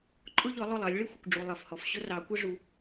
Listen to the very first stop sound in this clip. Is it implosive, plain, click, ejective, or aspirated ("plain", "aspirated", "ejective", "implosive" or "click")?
click